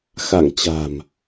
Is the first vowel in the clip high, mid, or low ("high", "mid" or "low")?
low